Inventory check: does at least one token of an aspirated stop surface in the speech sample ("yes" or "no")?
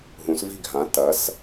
no